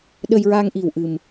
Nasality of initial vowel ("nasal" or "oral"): oral